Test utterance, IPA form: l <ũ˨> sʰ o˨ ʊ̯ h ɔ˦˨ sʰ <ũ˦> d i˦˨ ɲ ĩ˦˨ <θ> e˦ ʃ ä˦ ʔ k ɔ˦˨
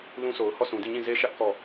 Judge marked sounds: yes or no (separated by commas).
no, no, no